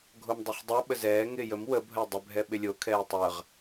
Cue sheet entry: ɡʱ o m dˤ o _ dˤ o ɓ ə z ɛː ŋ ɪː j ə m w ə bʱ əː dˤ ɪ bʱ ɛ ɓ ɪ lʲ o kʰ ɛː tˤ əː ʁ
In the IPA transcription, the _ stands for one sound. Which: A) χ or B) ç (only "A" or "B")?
A